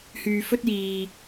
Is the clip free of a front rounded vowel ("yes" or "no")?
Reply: no